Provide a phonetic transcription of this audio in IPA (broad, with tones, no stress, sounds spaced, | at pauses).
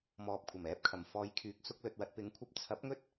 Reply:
m ɔː˨ p̚ kʷʰ ɐ˨˩ m ɛː˨˥ p̚ kʰ ɐ˨˩ m f ɔː˨˧ j kʰ yː˨˥ k̚ s ʊ˧ k̚ l ɵ˧ t̚ w ɐ˧ t̚ p ɪ˨˧ ŋ kʷʰ ɐ˧ p̚ t͡sʰ ɐ˨˥ p̚ ŋ ɵ˥ t̚